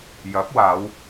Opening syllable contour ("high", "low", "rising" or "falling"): rising